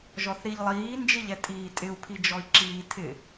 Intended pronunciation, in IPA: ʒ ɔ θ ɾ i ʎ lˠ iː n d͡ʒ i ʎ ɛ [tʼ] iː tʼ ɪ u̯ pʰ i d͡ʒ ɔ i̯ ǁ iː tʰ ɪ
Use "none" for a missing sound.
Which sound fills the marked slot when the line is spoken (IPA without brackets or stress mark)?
tʼ